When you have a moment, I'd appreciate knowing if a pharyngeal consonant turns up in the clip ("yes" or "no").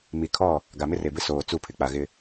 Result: no